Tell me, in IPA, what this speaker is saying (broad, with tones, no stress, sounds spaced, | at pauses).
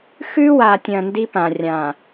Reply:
x ʉ˦ w a˨ tʲ ɐ̃˨ n d i˦ p ã˨ rʲ ã˨